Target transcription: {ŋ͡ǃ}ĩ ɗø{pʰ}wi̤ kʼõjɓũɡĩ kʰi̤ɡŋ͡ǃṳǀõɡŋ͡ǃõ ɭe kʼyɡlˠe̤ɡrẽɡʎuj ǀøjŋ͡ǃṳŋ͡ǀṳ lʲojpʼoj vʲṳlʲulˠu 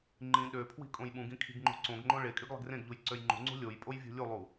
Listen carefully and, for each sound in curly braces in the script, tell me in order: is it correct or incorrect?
correct, correct

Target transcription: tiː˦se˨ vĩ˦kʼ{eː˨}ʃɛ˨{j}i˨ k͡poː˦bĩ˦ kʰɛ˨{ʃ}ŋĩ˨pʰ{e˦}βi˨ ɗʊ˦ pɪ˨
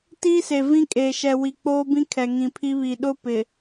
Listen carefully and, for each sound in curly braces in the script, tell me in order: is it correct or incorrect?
correct, incorrect: w, incorrect: none, incorrect: i˦

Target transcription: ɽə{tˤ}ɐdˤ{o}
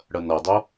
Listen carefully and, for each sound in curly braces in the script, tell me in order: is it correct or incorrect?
incorrect: n, correct

